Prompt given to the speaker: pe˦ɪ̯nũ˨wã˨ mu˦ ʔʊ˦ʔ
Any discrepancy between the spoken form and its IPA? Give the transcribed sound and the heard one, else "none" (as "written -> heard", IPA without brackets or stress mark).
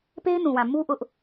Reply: none